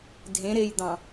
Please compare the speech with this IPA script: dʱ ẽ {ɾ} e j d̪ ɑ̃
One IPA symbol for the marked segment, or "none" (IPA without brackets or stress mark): ɾ